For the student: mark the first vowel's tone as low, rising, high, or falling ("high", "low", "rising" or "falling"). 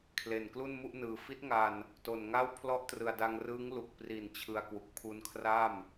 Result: low